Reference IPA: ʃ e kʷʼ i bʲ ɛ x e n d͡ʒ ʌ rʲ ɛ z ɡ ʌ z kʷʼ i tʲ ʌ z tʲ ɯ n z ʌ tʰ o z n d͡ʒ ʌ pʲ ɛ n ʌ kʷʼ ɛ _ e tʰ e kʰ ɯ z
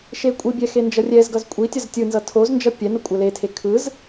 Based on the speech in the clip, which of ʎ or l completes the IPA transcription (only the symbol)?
l